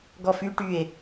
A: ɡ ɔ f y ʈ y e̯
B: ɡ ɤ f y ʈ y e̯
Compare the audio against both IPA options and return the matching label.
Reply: A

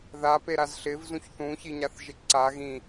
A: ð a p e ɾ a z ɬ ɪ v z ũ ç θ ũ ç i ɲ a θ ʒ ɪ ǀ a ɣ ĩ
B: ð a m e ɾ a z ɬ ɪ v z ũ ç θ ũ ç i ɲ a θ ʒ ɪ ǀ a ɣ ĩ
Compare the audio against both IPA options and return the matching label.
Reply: A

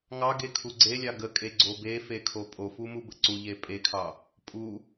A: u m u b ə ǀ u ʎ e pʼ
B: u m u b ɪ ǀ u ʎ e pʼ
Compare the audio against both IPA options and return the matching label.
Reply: A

